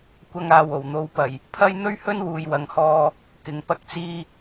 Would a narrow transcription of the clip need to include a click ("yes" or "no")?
no